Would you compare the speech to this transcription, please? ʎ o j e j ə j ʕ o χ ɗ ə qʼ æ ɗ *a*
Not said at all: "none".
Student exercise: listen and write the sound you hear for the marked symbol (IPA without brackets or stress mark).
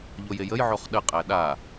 a